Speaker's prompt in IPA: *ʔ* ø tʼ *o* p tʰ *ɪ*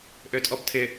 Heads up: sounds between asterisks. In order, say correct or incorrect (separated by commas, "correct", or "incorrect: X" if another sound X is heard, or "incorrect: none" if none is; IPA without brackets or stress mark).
correct, incorrect: ɔ, correct